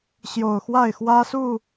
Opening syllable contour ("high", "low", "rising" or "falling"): low